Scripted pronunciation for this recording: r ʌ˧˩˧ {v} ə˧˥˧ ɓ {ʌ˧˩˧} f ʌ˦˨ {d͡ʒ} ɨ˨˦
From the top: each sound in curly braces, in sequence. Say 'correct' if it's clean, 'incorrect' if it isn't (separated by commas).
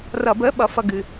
incorrect, incorrect, incorrect